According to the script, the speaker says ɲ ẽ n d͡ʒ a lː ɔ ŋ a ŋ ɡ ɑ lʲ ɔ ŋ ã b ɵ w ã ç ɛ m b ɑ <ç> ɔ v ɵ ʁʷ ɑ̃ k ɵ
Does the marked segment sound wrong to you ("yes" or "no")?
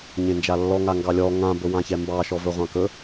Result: yes